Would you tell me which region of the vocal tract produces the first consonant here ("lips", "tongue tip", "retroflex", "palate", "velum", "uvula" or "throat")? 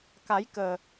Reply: velum